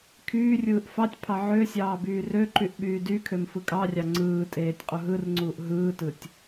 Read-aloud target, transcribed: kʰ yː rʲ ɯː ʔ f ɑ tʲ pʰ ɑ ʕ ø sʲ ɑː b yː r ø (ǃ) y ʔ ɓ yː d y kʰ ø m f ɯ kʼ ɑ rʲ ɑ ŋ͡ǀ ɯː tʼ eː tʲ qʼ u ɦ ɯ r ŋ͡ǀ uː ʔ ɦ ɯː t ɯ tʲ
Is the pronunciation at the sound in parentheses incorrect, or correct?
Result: correct